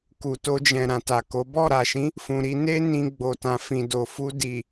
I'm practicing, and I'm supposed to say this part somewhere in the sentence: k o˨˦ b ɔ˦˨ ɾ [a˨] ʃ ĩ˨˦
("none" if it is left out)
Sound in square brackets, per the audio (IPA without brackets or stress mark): a˨